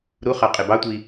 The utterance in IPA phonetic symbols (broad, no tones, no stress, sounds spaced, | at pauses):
ɾ u χ ɑ qʼ e b ɑ tʷ i